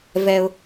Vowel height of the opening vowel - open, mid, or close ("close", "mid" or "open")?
mid